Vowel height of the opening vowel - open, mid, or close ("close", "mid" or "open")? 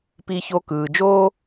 close